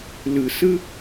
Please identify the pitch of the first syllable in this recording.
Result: low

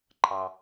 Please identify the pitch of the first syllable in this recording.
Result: low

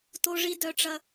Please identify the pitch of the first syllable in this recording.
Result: high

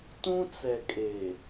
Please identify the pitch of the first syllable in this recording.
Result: high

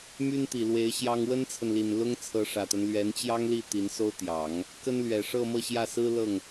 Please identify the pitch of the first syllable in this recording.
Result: high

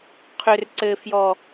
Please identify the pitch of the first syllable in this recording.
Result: low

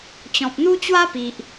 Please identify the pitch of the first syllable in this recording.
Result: low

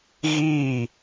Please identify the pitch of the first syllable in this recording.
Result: falling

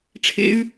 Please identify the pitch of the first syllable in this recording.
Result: low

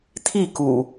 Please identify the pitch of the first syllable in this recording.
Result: falling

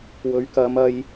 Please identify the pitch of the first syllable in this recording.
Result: rising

